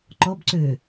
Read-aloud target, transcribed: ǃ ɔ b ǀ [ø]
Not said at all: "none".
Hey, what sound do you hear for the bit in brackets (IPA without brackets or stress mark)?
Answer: ø